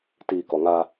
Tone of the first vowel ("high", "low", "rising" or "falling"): low